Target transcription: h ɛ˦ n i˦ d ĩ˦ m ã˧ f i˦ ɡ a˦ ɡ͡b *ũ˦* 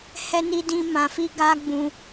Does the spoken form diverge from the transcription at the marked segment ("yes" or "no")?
yes